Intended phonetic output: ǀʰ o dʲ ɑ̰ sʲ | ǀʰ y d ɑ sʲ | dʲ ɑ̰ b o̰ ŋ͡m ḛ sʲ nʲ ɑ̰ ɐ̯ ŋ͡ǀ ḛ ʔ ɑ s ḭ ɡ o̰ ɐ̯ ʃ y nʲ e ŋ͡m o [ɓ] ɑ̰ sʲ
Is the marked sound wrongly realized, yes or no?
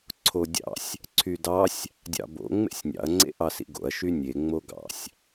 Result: yes